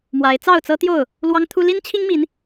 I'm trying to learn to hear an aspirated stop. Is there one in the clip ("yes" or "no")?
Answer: yes